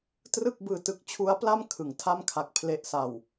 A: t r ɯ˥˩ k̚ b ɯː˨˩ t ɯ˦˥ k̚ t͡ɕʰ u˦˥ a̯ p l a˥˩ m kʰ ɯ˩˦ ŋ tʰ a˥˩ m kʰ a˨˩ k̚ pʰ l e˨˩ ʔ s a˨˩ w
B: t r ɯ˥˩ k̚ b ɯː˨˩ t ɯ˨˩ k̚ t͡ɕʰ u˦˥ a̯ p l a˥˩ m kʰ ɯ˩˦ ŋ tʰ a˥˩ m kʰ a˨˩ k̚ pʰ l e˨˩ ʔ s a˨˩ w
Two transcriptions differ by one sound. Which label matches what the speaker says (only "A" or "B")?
A